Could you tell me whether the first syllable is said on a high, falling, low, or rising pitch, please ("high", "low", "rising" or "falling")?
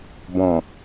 low